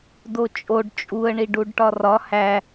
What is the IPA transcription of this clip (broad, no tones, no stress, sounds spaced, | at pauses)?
d o t͡ʃʼ o ɖ t͡ʃʼ u ə̯ ɳ i ɖ u ɖ ʈ ɒ r ɒ h æ